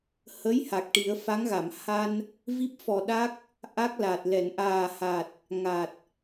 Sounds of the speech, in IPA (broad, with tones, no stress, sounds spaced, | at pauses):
h ə˧˥ j h a˨˩ k̚ ʈ i˨˩˦ ə̯ f a˧˥ ŋ ɣ a˨˩˨ m h a˧ n | v i˦˥ p̚ f ɔ˨˩ ɗ a˦˥ k̚ | ʔ a˦˥ k̚ l a˨˩ t̚ l ɛ˨˩˨ n ʔ aː˨˩ h a˨˩ t̚ | ŋ a˨˩ t̚